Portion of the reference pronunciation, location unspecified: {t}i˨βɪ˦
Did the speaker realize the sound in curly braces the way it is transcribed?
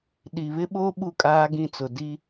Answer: no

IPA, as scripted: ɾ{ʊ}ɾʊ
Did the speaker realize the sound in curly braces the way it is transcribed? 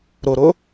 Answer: yes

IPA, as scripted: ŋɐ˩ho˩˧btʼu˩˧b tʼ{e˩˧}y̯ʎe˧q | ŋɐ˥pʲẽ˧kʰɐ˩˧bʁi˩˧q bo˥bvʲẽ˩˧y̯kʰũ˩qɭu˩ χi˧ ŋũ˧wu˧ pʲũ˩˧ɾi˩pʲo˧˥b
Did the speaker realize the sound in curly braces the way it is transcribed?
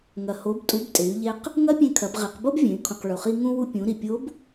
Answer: yes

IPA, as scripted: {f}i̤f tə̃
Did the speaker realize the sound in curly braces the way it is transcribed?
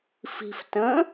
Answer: yes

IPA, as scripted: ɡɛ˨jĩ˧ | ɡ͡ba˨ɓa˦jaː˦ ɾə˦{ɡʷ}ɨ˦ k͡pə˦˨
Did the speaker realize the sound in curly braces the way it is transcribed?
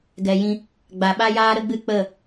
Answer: no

